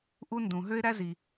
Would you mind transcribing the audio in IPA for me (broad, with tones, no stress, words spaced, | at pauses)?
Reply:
ʔu˥ndũ˩ ɦø˥ɪ̯ɾæ˥zi˩